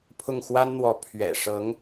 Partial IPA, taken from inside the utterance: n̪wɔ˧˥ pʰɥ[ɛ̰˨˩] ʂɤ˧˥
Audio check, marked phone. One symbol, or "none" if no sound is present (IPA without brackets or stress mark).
ɛ̰˨˩